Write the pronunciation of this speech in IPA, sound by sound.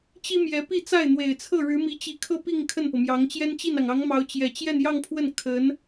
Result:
t͡ɕ i˥ m j ɛ˧˥ p i˥˧ t͡s a˥˩ ɪ̯ n̪ w e˨˩ ɪ̯ t͡sʰ ɤ˥˩ ɻ ɻ̩˧˥ m i˧˥ t͡ɕ i˧˥ kʰ ɤ˥˧ p i˥˧ ŋ kʰ ə˥˩ n p ɤ˩ m j ɑ˧˥ ŋ t͡ɕ j ɛ˥ n t͡ɕ i˥˩ n ɑ˩ ŋ ɑ˧˥ ŋ m ɑ˧˥ ʊ̯ t͡ɕ j ɛ˨˩ t͡ɕ j ɛ˥˧ n j ɑ˥˧ ŋ pʰ w ə˥˩ n kʰ ə˧˥ n

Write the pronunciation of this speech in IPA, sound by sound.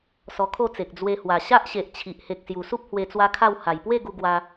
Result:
s ɔ˧ kʰ o˥˧ t͡s e˨ k̚ d͡z w e˧ h w a˨˩ ɕ a˦ ʔ ɕ e˨ ʔ t͡ɕʰ i˨ ʔ h e˨ k̚ s j u˨˩ s u˦ p̚ h w e˧ t͡s w a˦ kʰ a˥˧ w h a˨˩ j p w e˥˧ ɡ u˧ ɡ w a˧

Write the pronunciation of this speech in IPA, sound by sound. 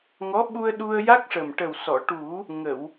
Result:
ŋ ɔ˧˥ ɓ u˧ ə̯ ɗ u˧ ə̯ j a˦˥ k̚ ʂ ə˨˩ m ʈ ə˨˩ w s ɔ˨˩˨ ʈ u˨˩˦ | ŋ ə˨˩˨ w

